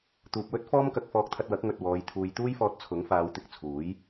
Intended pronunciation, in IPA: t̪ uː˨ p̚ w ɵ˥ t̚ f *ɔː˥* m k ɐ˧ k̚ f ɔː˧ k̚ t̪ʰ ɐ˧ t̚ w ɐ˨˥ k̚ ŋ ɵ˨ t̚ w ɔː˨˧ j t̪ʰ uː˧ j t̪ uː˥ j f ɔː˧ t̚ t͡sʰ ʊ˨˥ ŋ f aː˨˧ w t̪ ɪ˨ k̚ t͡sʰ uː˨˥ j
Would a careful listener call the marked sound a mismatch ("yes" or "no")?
no